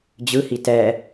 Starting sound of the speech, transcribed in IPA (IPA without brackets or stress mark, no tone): d͡ʑ